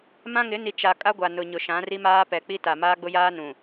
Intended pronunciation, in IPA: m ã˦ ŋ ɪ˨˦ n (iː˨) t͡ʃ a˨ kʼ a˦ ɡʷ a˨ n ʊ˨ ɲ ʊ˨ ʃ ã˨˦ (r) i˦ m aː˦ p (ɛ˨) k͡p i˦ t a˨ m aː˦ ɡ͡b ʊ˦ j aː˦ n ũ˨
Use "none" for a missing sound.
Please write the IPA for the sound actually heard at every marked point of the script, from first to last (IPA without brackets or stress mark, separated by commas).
i˨, r, ɛ˨